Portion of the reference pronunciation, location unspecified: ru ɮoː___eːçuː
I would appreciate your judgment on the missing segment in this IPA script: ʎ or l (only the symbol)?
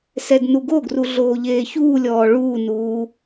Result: ʎ